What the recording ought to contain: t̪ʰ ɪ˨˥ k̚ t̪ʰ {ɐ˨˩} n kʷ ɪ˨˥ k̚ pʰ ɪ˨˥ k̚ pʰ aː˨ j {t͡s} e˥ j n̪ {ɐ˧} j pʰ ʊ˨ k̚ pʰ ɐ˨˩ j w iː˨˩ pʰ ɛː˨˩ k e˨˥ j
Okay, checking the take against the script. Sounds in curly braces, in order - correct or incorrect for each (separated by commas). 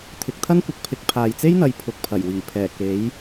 incorrect, correct, incorrect